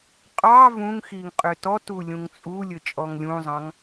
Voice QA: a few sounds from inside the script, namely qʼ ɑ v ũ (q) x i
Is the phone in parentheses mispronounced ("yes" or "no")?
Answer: yes